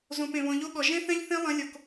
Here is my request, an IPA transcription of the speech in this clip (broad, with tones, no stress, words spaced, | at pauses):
zõ˨p ẽ˨βɔ̃˨ʎo˦ɠɔ˨ ʒẽ˦θɛ̃˦ʎθẽ˦ lˠɐ̃˦ lʲo˨k